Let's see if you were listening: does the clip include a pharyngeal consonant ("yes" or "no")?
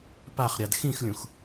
no